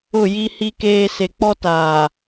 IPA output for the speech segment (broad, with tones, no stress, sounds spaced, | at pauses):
ʊ˦˨ j i˦ h i˦ k eː˦ s e˨ k͡p ɔ˦ t aː˨